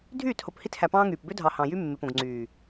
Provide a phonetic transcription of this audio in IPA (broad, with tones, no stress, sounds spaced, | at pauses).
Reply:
dʱ yː˦˨ t h o˨ p h i˦ t h æ˨ p ɑ̃ː˦ ŋ yː˨ p b ø˦ dʱ ɑ˨ h ɑ̃˨ j y˦ mː e˨ p õ˨ ɡ ŋ͡ǀ yː˨